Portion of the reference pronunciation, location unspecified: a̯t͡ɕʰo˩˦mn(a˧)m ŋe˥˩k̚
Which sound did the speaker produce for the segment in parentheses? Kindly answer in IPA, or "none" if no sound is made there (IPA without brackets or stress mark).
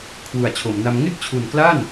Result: a˧